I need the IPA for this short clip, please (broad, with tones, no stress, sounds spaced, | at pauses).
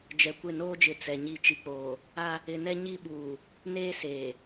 d͡ʒ ɛ˨ kʷ ɪ˦˨ n oː˦ d͡ʒ ɪ˨ t͡s ɛ˨ ɲ i˦˨ t͡ʃ i˨ k͡p oː˨ | a˦ | ɪ˨ n ɛ˦ ɲ i˦ ɓ uː˨ | n eː˦ s eː˨